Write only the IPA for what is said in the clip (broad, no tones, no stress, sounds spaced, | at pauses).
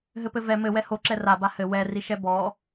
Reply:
ɦ ɘ p ɘ v ɛ m ɘ w ɛ h o ǁ ɛ r a b a h ɘ w ɛ r i ʃ ɛ b ɔ